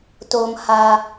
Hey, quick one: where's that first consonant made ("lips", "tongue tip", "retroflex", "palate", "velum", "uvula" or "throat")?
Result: tongue tip